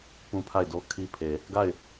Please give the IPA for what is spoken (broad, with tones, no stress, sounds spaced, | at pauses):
p ũ˦ pʰ a˦˨ ɪ̯ d o˦ kʰ i˦ pʰ e˨ | ɡ a˦˨ ɪ̯